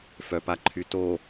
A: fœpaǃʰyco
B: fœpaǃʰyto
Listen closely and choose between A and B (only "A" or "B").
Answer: B